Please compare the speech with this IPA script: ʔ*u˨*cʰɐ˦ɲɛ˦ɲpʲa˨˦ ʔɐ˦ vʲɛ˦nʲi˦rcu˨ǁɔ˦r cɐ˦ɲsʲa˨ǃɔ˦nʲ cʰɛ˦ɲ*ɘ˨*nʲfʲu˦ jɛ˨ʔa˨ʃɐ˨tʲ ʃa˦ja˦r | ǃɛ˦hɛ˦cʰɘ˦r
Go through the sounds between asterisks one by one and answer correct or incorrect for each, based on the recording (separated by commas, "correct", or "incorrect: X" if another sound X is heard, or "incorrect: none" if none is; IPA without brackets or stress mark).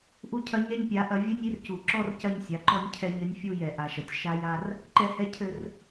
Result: incorrect: u˦, incorrect: ɘ˦